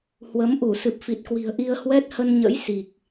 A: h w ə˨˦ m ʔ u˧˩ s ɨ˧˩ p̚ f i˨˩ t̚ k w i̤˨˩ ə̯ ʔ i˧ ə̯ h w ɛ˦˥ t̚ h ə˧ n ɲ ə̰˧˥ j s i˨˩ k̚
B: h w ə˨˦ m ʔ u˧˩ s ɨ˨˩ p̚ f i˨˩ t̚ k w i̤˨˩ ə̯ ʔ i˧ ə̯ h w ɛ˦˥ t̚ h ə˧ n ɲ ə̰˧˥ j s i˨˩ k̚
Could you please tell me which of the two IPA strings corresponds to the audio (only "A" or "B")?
B